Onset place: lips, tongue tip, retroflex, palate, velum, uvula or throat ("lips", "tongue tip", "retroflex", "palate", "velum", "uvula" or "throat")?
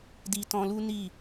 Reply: tongue tip